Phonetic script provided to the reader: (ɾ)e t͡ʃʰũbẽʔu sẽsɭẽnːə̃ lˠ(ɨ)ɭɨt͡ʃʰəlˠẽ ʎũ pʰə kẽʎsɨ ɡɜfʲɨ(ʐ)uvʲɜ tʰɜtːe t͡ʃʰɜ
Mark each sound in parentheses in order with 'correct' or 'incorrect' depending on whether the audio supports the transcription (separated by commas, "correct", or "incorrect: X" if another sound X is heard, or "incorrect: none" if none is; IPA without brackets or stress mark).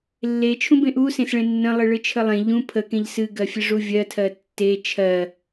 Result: incorrect: lː, correct, correct